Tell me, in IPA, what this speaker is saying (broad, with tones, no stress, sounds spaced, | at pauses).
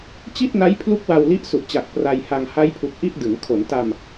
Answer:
t͡ɕ i˥˩ t̚ n a˦˥ j pʰ l u˦˥ k̚ w a˧ w l i˦˥ ʔ s u˨˩ ʔ t͡ɕ a˨˩ k̚ p r a˧ j h a˧ ŋ h a˦˥ j pʰ u˨˩ k̚ ʔ i˥˩ ʔ d ɯ˩˦ ŋ kʰ o˩˦ n t a˧ m